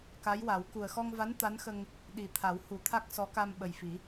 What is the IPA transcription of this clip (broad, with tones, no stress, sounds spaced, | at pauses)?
k a˧˥ j w a˨˩˦ w k u˨˩ ə̯ x ɔ˧ ŋ v a˧˥ n t̪ a˧˥ n x ə˧ ŋ | ɗ i˨˩ t̪ʰ a˨˩˦ w h u˨˩˦ t̪ʰ a˦˥ k̚ s ɔ˧˥ k a˧ m ɓ ə˨˩ j f i˨˩˦